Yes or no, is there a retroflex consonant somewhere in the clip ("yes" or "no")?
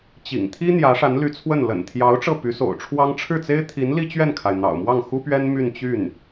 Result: yes